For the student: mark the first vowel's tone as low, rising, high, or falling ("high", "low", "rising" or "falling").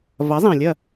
rising